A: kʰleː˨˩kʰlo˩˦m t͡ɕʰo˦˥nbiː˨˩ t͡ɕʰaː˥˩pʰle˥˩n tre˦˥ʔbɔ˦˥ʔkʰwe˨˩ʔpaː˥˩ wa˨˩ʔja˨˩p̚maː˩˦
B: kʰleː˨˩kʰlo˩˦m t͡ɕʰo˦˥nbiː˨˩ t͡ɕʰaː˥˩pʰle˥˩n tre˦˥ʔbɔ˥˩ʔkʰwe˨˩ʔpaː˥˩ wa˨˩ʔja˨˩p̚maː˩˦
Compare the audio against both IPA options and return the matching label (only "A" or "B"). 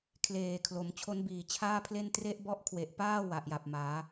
A